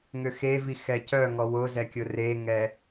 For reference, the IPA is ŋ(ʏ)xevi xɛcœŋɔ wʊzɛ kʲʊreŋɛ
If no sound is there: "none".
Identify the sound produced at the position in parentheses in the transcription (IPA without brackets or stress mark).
ʏ